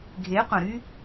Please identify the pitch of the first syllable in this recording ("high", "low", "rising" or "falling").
rising